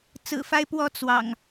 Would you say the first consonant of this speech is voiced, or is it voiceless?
voiceless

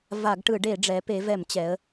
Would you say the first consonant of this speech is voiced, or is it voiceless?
voiced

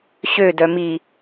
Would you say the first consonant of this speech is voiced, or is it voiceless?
voiceless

